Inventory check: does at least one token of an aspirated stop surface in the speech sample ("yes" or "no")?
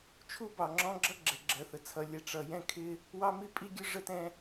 yes